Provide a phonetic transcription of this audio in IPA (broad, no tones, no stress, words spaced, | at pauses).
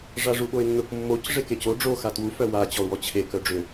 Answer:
ʐaʐuɓoɪ̯nːʊk mːoc ʐekeco ɖ͡ʐo xatwu fœwa t͡ɕɔʊ̯wɔt͡ɕʰe kœɖ͡ʐʏ